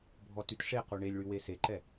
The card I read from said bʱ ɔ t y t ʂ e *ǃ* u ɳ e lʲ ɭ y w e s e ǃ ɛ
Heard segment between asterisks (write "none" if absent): q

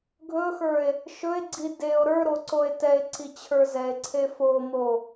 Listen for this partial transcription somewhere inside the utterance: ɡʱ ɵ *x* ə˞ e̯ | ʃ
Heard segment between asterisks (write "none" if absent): x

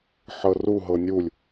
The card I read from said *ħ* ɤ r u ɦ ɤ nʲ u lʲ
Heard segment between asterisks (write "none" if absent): ħ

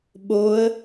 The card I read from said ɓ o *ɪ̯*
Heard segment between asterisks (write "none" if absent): ə̯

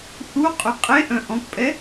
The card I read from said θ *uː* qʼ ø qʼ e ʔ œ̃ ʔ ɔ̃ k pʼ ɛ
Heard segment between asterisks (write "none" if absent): u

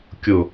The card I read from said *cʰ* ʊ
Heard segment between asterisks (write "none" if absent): kʲ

